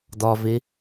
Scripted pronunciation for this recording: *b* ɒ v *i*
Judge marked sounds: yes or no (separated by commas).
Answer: no, no